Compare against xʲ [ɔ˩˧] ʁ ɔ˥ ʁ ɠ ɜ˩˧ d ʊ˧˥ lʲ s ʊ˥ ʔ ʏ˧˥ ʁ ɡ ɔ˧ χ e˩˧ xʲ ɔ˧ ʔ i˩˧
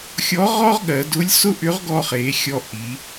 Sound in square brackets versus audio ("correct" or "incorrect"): incorrect